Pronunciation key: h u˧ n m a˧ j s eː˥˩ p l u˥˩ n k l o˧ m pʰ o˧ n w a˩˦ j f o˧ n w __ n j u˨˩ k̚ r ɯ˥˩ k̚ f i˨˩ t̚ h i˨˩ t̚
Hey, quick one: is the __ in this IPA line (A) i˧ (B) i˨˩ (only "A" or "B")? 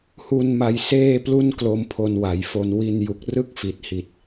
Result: A